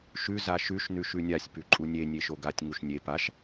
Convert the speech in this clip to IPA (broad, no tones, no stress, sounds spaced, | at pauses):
ʃ ʉ z a ʃ ʉ ʃ n ʉ ʃ ʉ nʲ a sʲ p ʉ ǃʼ u nʲ e nʲ e ʃ o ɡ a tʲ ŋ u ʃ nʲ e p a ʃ